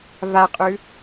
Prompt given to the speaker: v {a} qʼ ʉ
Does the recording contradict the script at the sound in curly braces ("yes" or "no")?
no